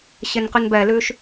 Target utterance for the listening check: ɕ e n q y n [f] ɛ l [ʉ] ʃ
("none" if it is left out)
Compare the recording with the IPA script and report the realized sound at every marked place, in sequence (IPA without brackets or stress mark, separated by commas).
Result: b, ʉ